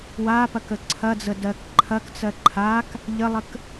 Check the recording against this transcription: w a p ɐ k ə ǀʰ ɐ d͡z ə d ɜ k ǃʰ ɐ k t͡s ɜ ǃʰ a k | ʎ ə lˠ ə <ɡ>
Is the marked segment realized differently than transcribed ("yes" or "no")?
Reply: yes